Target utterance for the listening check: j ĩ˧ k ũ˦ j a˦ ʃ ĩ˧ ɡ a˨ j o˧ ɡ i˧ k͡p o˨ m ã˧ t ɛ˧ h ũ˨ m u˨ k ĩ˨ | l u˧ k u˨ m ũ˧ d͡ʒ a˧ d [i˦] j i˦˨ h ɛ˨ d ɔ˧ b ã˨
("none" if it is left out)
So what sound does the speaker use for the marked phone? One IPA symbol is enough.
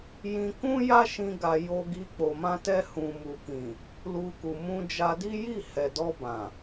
i˦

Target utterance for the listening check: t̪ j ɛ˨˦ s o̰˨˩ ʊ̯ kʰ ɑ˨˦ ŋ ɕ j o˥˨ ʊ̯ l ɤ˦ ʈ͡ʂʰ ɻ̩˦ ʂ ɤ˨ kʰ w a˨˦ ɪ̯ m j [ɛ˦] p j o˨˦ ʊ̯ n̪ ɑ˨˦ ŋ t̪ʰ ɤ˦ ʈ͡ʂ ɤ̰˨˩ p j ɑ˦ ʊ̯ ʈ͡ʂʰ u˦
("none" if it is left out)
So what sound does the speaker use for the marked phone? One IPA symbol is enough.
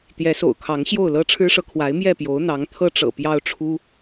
ɛ˥˨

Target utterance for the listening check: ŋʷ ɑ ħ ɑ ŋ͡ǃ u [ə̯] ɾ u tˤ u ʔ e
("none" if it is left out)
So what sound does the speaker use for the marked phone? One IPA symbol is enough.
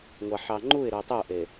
ɪ̯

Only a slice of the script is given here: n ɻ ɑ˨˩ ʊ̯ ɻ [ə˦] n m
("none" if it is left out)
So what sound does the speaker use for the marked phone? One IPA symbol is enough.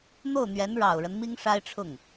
ə˦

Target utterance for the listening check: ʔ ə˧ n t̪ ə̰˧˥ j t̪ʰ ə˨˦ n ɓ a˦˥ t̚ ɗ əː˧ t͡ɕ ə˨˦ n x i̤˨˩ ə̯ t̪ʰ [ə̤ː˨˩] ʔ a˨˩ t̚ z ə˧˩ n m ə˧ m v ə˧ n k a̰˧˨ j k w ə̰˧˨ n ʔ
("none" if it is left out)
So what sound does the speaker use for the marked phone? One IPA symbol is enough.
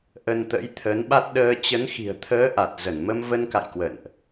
əː˨˦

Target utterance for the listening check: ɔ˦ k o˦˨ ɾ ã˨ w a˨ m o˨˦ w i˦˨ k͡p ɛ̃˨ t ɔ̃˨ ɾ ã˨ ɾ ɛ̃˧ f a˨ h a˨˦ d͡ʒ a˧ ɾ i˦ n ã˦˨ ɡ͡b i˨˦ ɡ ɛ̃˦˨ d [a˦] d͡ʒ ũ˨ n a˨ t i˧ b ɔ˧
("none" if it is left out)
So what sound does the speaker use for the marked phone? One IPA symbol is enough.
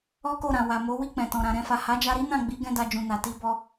a˧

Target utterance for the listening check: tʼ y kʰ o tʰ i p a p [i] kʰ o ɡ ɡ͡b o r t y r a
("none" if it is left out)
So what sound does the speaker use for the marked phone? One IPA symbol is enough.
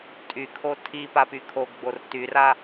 y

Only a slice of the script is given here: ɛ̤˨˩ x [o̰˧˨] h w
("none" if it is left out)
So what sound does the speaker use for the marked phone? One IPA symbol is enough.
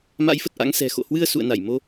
o̰˧˨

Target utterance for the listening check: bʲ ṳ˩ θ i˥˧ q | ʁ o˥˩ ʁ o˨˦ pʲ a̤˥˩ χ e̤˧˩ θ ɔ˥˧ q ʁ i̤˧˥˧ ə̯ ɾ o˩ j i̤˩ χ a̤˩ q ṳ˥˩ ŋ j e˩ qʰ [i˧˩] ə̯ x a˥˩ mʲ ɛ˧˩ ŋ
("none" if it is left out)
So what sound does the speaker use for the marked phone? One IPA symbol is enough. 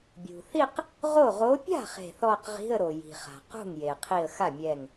i˧˩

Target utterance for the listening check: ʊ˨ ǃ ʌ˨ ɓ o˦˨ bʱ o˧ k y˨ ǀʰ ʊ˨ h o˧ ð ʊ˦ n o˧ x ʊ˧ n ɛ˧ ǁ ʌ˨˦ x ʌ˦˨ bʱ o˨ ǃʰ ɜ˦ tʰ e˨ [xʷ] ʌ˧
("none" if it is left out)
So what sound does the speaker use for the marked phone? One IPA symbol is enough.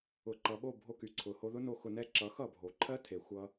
xʷ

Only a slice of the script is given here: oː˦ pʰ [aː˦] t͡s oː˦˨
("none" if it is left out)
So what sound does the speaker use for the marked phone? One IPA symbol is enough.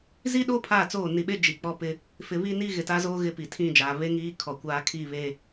aː˦˨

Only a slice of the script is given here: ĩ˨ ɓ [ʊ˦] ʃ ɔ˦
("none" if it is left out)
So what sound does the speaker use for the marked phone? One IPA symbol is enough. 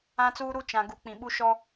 u˦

